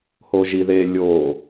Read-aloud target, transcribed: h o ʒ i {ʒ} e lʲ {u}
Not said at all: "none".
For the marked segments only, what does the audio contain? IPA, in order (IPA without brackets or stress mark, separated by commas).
ð, o